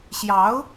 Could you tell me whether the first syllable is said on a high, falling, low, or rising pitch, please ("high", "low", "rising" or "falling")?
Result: rising